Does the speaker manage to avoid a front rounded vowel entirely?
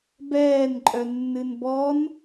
no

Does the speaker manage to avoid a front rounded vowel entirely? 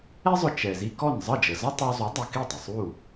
yes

